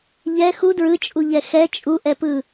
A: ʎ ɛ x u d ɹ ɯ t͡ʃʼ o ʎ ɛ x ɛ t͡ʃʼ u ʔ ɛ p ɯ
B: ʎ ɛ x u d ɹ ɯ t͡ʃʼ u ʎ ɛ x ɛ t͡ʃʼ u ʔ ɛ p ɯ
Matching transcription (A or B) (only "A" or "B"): B